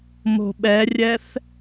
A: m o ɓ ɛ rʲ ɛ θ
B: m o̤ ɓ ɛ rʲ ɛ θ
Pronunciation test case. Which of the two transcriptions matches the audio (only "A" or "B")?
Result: B